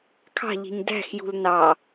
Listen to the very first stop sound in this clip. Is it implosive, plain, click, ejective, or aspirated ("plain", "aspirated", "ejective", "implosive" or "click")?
aspirated